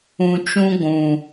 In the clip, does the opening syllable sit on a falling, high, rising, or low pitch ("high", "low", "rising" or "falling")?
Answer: low